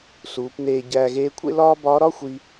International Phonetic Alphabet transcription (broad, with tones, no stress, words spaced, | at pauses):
suː˩˧pneː˧ ɟæː˧ɣeː˧˥kʷʰḛ˥ lɒː˥ bɒː˧˥ɾɒ˥xʷi˧